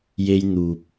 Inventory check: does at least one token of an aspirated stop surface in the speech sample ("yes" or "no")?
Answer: no